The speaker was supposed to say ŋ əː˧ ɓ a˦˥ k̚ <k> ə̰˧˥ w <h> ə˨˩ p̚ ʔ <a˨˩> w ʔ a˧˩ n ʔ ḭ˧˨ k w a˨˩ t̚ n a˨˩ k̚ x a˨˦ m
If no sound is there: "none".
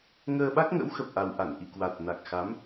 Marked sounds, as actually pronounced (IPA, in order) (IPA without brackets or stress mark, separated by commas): ŋ, x, a˨˩